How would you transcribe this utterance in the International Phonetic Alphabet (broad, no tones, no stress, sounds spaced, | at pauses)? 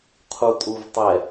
qʰ u tʼ u v tˤ ɛ